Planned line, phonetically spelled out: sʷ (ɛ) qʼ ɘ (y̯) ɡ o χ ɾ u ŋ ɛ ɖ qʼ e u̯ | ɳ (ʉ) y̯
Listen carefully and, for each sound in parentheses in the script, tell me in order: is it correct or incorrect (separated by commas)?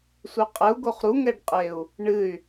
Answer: incorrect, incorrect, incorrect